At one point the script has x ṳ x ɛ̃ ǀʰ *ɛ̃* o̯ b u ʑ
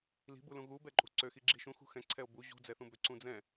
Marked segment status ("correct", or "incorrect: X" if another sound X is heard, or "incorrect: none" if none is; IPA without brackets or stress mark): incorrect: ɛ